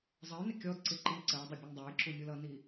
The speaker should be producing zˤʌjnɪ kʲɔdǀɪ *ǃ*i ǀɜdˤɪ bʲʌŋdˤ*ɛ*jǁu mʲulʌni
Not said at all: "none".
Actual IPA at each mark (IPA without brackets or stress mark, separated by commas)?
ǃ, æ